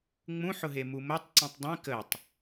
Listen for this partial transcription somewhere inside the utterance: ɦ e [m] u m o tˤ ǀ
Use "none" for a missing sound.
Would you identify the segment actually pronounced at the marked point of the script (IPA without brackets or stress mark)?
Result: m